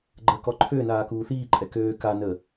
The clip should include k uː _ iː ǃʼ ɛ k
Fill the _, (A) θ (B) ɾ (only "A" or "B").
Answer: A